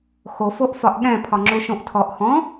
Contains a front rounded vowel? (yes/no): no